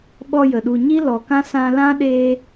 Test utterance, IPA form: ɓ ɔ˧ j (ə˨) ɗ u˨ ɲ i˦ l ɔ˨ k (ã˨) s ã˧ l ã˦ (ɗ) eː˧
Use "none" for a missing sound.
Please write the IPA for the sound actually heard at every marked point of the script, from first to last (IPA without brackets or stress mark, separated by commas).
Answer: ə˨, ã˦, ɗ